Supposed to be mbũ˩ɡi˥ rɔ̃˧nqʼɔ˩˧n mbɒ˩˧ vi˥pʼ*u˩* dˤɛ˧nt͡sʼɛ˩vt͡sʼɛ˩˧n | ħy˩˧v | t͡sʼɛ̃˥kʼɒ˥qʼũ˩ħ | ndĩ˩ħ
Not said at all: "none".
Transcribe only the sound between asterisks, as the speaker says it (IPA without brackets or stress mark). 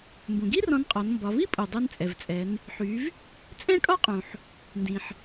u˩